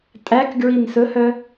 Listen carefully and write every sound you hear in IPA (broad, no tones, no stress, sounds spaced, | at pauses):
tʼ æ k ɡ ɹ i n s ɵ h œ